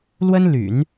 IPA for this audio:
l w ə˥ n l y̰˨˩˦ n

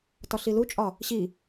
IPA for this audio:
t ɒ ɬ i l u t͡ʃʼ ɒ | ɕ i

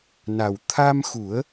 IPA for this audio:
n a˨˩ w t̪ʰ a˧ m x u˨˩˦ ə̯

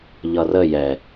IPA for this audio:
ʎ ʌ r ə j ɛ

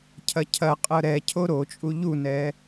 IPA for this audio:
cʰ ɐ cʰ ɐ qʼ ɤ ɾ ɛ cʰ o ɾ o t͡ʃʼ u ʎ u n ɛ

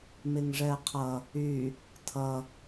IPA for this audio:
m ɪ ŋ ʐ ɛ qʰ ʌ | y | tʰ ʌ

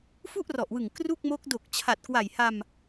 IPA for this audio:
f u˥˩ ʔ r ɔ˨˩ ʔ w ɯ˨˩ ŋ k r u˥˩ k̚ m o˦˥ k̚ d o˨˩ k̚ t͡ɕʰ a˨˩ t̚ k w a˨˩ j h a˧ m

